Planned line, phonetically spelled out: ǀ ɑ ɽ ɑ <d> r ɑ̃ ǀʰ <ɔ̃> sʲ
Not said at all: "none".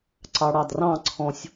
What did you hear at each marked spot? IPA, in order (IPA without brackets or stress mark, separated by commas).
d, ɔ̃